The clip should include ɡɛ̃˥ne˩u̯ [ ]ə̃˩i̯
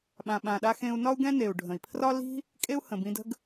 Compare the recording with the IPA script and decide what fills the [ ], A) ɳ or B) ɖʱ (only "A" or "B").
B